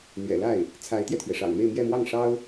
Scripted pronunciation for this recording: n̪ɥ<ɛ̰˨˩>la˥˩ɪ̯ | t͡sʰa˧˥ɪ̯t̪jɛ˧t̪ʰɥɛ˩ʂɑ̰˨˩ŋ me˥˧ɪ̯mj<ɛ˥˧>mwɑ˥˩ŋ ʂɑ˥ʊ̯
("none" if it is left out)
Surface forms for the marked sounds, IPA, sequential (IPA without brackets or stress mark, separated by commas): ɛ̰˨˩, ɛ˥˧